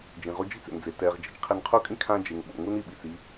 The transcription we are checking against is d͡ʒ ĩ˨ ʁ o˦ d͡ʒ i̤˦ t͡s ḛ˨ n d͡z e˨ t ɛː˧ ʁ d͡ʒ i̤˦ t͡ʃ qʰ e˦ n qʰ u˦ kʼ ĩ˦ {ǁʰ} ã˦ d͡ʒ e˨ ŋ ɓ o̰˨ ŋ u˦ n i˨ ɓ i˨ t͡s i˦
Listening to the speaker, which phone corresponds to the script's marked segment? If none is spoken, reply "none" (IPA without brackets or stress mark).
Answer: kʰ